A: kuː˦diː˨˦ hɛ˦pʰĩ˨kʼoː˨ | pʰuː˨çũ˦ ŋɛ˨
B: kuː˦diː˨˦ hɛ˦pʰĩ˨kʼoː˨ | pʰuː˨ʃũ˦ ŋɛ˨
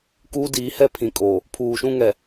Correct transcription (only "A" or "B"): B